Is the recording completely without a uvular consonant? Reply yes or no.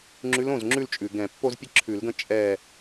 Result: yes